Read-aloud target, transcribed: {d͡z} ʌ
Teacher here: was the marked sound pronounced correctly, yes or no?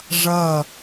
no